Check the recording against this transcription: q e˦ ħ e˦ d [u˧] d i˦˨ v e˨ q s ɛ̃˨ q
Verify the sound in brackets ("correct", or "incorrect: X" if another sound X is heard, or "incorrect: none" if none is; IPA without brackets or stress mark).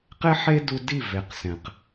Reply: correct